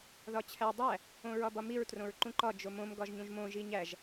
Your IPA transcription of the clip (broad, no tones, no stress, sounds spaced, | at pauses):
ð ɒ t͡ɕʰ æ dˤ æ | õ ɹ ɒ b ɒ m i ɹ t r õ ɹ ǃ ũ ǃ ɒ d͡ʒ o m õ m ɡ ɒ ʒ ɲ ũ ʒ m õ ʒ i ɲ æ ʒ